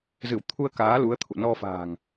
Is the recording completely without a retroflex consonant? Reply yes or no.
yes